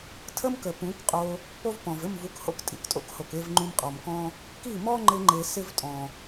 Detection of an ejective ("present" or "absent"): present